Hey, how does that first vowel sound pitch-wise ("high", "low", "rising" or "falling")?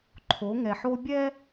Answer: rising